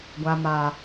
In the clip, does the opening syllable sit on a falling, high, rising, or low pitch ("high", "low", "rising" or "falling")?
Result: low